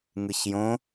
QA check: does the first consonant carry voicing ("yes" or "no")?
yes